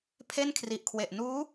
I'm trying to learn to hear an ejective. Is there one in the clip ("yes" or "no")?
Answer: no